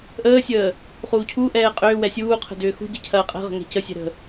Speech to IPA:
ʔəːsʲəː | χuːcʰuʔɛː qʼʏːwɛ sʲuːqʰə̤ dʏːxṳɟɛ cʰɐːqʼɛ̤ʁə̤ ŋɛ̤cəsʲɛ̤ ɾə̤

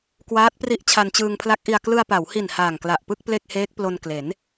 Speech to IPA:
kwaː˦˥t̚pri˦˥ʔ t͡ɕʰa˧nt͡ɕɯː˧ŋpʰla˦˥k̚ʔi˧a̯ klɯ˧a̯pa˩˦whi˨˩n haː˨˩ŋkla˨˩ʔpɯ˥˩k̚ ple˥˩k̚heː˦˥k̚plo˧n kle˩˦n

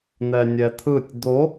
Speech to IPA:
n̪ɛnʲɛt̪ʰɯtʲ d̪o

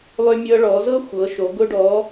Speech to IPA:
lˠʏ˧mʲɤ˧ ɭɔ˩˧zɤ˥xʷɤ˩˧ʃo˩˧ ɡʊ˧ɖɔ˩˧

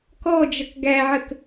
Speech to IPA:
kɔ d͡ʒʌkɡæʕək

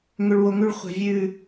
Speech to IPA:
ŋʏ˨ɭ wo˨ŋʉ˦ɭχʷɛ̤˨vʲʉː˦˨

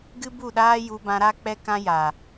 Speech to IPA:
ɡɨ˦bu˦˨ɗaː˦ ju˧bã˧ɾa˦ k͡pɛ˦kã˦ja˨

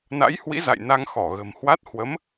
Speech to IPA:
na̰˧˥jhwḭ˧˥ za̰˧˨jna˧ŋ xɔ˧˩ɣə̤˨˩mhwa˦˥t̚ hwə˨˦m

